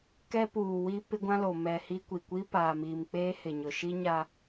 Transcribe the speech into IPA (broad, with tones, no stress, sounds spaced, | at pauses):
k ɛ˦ p uː˨ w i˦ p ɪ˦ ɡʷ ã˦ l o˨ m ɛ˨ h i˦ kʷ i˨ kʷ i˦ p aː˨ m iː˨ m k͡p eː˦ h ɪ˨ ɲ ʊ˨ ʃ i˦ ɲ a˦